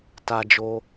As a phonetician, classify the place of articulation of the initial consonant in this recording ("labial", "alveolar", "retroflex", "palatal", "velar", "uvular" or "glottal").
alveolar